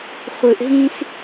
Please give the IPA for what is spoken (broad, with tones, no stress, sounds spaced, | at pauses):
χʷ ɯ˨ ʔ ɦ ĩ˦ s